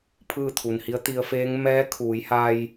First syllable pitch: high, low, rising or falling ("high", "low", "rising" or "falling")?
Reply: falling